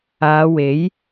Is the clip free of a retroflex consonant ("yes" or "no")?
yes